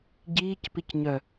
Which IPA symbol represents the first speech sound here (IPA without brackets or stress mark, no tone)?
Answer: ɟ